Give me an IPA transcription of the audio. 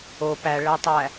o p æ ɭ æ tˤ æ

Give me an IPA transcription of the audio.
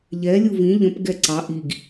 ʎ ɛ lʲ u v ĩ ʎ ə̃ p ɡ ɛ ǀ ɑ ʔ i ɡ

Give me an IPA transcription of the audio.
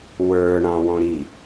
w ə˞ ɳ ɑ̃ w ɔ̃ ɾ i

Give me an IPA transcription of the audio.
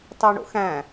t ɑ ɳ o̰ x æ̃

